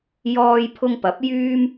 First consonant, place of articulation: palatal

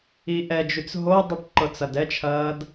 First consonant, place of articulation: glottal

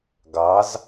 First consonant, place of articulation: velar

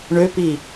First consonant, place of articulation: retroflex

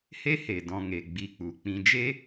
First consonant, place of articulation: glottal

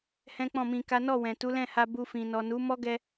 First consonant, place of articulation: glottal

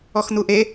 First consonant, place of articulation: velar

